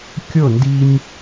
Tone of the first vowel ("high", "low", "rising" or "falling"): falling